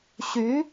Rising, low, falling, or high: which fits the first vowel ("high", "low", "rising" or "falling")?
rising